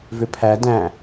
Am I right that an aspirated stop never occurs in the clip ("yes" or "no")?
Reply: no